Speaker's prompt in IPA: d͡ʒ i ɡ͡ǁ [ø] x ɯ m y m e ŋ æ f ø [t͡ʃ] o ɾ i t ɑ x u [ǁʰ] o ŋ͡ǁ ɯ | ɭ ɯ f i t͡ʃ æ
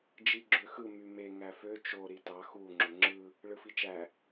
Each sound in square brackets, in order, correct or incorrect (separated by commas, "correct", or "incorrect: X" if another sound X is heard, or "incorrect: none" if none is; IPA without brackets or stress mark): correct, correct, incorrect: ŋ͡ǁ